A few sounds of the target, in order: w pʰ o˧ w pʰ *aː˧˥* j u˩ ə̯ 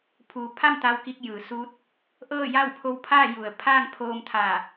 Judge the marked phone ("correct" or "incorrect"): incorrect